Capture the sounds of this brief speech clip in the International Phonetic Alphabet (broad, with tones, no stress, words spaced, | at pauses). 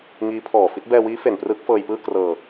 ŋiː˦˥pʰɔː˨˩ fi˦˥t̚ bɛː˧wiː˦˥ fe˨˩nprɯː˦˥k̚fɤː˧jpɯː˥˩ krɤː˧